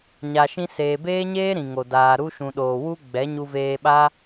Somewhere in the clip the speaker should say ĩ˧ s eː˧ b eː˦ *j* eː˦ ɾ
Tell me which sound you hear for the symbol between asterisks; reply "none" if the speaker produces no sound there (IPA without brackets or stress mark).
ɲ